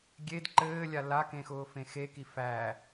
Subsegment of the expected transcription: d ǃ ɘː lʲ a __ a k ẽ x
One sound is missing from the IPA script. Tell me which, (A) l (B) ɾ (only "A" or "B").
A